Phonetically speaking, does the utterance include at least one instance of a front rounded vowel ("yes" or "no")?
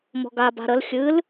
no